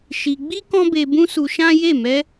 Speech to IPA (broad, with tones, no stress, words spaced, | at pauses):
ʃi˧ ɡ͡bi˦ kɔ̃˦be˧bũ˦ su˧ʃã˦je˦˨ mɛ˧